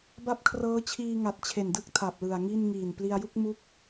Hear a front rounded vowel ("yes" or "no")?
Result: no